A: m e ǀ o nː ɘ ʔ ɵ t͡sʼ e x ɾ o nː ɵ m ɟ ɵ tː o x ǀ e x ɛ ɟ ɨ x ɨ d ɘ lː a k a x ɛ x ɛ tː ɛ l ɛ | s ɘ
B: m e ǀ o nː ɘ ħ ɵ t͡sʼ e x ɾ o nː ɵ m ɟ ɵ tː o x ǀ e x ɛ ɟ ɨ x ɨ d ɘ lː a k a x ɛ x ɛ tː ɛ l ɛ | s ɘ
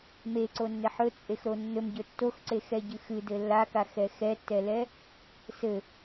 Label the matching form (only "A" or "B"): B